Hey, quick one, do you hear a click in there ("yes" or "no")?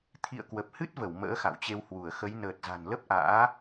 no